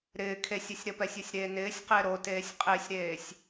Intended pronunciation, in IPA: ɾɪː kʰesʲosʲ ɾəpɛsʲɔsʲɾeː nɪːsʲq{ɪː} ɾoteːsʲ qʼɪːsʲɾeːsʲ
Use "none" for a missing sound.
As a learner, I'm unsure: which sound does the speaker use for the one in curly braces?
ɪː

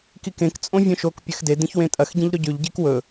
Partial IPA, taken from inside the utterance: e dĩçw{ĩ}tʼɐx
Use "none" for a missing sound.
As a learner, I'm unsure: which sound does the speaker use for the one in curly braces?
ẽ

